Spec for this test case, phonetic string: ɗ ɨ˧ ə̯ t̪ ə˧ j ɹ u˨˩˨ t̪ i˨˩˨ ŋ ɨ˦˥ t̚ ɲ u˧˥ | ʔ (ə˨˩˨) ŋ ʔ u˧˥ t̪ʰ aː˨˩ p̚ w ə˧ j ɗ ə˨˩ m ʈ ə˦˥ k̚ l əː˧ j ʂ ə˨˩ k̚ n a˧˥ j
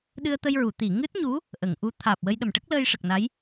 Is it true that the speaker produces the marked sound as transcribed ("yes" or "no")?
yes